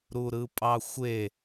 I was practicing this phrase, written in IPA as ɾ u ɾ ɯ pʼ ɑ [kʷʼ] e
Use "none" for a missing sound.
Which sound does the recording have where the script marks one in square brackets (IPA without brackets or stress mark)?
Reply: xʷ